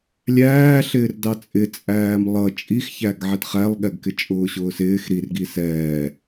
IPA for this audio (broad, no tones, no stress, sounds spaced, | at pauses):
lʲ æː ɬ ɪː r d ɑ t͡sʼ ɪ t͡sʼ æː m lˠ ʌ t͡ʃʼ i x ç æ ɡ ʕ ɛ t χ æ lˠ ɠ ɛ ɡ k ɪ t͡ʃʼ ʊː ɕ ʊː s ɪː x ɾ i r ɡ i s ɛː